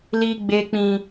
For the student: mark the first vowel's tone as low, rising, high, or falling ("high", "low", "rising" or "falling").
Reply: high